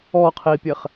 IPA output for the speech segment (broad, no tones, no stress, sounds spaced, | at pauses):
ɔ qʰ i pʲ ɛ χ